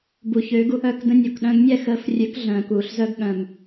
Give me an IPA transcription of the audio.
b u˩ ç ø˩˥ ɡ u˧ ʔ œ˥˩ k d ə̃˧ nʲ o˩ k ɗ œ̃˧ ɡ nʲ ɛ˥˩ x əː˩˥ f rʲ ø˩˥ k ɮ œ̃ː˩ k uː˩ ɬ z œ˧ ɡ ɠ œ̃˩ m

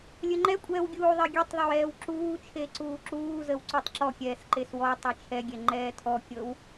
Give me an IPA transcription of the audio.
lʲ ə ŋ͡ǃ ɛ kʷʼ ɛː w ɡʲ uː ðˤ e ɡʲ ɛ tˤ ðˤ ə w ɛː w ǁ uː t͡ʃʰ e ǀ uː ǁ uː z ə w ǀ u tˤ ǁ ɔ kʲ ɛː s ǃ e s w ɔ tˤ ɛ t͡ʃʰ ɛ ɡʲ ɛ ŋ͡ǃ ɛː tʰ ɔ kʲ ɤ w

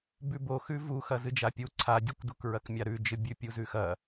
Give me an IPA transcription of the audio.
b ʉ b o x ʉ v u x ɐ z ɨ d͡ʒ a pʲ u ǀʰ a dʲ ɨ kʷ d u k ɹ ɐ k mʲ a ɾ ʉ d͡ʒ ɨ bʲ ʉ pʲ u z ʉ x ɐ

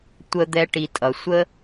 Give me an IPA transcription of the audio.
tʷ ə˧ d̪ ɛ˧ ʈ i˨ tʼ ʌ˨ sʷ ə˦

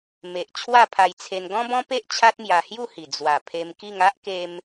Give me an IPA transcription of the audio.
m e˨ ʔ t͡ɕʰ w a˥˧ pʰ a˧ j t͡sʰ e˧ n ɡ ɔ̃˦ b ɔ̃˦ p e˦ ʔ t͡ɕʰ a˦ t̚ m j a˧ h j u˥˧ h i˨˩ d͡z w a˨˩ pʰ e˧ m k i˥˧ ŋ a˦ ʔ k e˧ m

